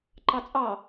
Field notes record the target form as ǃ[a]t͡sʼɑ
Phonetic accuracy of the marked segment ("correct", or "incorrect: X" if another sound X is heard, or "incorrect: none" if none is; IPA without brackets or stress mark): incorrect: ɑ